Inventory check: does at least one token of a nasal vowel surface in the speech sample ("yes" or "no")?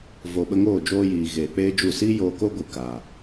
no